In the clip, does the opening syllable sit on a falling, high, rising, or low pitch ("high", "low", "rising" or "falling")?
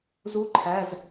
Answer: rising